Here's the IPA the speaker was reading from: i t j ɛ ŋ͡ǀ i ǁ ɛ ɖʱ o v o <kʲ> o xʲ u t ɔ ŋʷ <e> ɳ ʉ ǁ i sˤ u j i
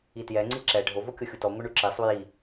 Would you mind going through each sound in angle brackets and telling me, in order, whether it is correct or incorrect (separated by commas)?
correct, incorrect